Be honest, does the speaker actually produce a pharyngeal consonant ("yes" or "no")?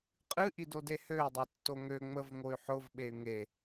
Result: yes